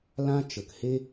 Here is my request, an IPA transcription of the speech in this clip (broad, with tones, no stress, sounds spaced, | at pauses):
l ã˦ t͡ʃ ə˨ k h e˦